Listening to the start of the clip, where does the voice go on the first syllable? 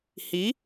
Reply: rising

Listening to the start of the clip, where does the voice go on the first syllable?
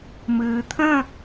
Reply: low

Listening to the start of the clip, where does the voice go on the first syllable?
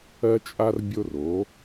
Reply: high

